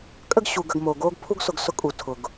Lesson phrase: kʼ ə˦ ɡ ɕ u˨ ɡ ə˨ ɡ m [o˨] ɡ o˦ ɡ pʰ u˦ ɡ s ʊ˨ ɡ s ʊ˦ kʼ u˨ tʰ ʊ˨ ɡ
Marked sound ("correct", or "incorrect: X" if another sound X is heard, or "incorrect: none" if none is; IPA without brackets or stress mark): correct